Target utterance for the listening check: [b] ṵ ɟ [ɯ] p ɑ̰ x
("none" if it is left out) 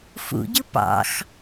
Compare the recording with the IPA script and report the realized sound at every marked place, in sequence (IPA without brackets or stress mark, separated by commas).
f, ɯ